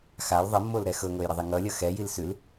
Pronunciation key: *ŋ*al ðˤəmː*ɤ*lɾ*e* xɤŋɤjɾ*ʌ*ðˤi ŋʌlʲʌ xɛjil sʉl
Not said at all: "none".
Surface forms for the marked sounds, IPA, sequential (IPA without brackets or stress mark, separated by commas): x, o, ɛ, ʌ